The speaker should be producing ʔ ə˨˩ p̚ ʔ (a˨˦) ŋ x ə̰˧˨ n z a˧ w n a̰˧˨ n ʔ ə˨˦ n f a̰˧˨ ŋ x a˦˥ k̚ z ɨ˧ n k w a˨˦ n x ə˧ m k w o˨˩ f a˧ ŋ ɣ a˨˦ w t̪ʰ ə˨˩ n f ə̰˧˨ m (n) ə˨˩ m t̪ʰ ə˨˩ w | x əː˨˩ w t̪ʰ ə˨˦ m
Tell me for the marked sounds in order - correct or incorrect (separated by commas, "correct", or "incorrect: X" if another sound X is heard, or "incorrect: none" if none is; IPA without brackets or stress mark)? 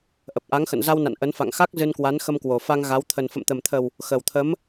correct, incorrect: t̪